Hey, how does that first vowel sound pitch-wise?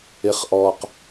low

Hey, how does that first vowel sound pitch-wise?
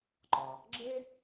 low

